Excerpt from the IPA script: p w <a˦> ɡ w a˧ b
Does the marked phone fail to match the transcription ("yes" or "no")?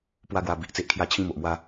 no